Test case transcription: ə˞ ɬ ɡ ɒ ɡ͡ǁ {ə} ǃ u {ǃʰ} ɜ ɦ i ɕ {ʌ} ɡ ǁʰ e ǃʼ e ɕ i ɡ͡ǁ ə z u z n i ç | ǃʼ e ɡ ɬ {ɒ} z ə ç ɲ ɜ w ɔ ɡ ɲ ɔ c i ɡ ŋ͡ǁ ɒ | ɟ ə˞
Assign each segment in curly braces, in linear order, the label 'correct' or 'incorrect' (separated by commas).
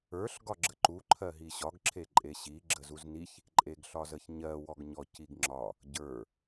correct, correct, incorrect, correct